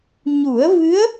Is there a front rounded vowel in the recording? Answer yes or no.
no